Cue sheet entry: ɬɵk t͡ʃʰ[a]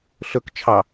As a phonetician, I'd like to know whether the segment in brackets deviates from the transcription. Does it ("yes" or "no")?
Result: yes